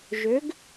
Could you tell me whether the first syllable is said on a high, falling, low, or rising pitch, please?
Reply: rising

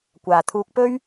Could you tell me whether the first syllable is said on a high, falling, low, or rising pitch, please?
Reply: low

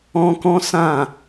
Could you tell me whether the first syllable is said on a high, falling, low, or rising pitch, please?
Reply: high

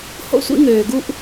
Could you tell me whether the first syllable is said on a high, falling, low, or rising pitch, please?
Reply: high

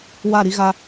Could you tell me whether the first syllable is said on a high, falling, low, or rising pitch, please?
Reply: falling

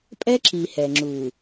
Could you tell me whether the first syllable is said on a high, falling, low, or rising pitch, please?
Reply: high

